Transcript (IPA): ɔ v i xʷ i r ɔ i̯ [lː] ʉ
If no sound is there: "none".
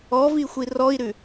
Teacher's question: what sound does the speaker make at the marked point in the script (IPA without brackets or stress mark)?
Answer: ɾ